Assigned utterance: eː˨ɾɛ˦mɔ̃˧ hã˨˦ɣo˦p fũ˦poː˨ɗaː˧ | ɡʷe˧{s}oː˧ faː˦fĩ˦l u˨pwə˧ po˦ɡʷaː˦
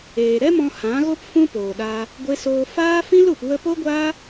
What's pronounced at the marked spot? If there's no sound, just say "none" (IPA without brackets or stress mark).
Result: s